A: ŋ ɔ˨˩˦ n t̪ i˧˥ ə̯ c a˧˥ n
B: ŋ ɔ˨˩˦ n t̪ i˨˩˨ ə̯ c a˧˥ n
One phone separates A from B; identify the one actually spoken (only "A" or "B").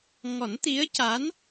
A